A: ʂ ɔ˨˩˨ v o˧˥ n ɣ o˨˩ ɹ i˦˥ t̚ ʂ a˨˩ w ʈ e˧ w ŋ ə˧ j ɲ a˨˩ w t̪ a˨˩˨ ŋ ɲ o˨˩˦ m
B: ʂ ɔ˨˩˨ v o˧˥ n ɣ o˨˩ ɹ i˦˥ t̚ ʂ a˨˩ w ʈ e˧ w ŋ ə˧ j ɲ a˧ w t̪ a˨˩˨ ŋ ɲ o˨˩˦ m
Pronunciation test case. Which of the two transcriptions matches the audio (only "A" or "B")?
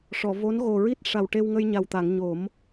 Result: A